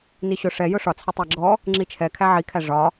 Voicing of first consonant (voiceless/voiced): voiced